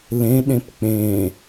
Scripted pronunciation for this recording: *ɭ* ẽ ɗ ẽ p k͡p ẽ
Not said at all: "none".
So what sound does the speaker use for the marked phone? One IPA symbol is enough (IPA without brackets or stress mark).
l